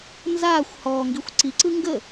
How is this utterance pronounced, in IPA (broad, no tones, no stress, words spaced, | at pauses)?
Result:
nzaːxʷ hɔːŋɡixʷ ǀiǀɯ ŋɡə